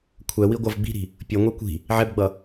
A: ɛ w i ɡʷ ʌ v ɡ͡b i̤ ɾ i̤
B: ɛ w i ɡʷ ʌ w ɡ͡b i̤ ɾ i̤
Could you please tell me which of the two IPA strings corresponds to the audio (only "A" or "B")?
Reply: A